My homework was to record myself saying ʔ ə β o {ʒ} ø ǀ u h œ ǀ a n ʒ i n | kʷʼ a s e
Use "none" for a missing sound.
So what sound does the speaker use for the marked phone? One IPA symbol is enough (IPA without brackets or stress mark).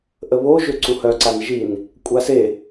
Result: ʒ